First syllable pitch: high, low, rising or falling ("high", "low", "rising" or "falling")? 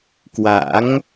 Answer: rising